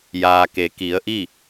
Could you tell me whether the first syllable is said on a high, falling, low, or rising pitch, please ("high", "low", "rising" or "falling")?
low